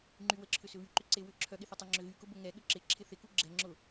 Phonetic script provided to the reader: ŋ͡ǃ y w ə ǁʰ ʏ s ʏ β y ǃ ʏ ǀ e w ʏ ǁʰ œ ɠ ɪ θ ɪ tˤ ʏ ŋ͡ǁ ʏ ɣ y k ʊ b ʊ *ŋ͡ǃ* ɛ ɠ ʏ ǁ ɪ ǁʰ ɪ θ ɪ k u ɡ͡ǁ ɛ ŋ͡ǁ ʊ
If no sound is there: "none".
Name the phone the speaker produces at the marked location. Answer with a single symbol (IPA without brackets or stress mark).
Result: ŋ